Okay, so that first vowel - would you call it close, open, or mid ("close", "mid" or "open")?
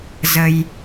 mid